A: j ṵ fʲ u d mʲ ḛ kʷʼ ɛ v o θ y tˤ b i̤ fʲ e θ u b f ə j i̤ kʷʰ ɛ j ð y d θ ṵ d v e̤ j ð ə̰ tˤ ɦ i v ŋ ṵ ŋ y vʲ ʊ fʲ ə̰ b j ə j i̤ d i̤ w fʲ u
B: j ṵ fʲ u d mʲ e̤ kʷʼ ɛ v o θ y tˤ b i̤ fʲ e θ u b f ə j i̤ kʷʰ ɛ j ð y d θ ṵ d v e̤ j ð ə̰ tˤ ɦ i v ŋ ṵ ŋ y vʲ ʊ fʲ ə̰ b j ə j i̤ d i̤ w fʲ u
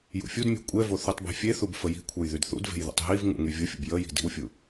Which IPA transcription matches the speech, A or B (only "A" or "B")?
B